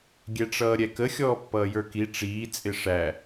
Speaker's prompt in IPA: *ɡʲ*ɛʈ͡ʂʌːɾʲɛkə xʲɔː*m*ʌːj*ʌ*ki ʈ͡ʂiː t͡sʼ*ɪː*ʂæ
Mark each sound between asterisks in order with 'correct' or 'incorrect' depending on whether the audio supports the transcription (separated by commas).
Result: correct, incorrect, incorrect, incorrect